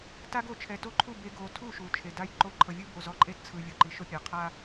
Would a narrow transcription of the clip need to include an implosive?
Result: no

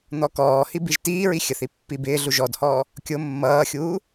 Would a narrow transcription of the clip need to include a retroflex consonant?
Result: no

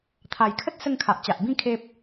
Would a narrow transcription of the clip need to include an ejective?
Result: no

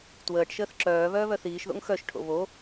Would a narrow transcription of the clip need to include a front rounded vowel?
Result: yes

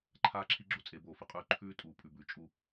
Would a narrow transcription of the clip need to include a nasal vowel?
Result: no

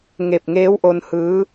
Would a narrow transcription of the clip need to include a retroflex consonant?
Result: no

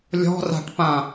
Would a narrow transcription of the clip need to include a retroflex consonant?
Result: yes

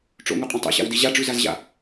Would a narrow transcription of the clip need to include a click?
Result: no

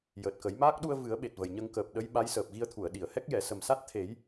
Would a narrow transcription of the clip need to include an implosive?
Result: yes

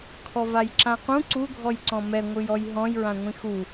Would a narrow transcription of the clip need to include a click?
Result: yes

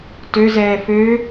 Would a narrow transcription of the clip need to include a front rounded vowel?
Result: yes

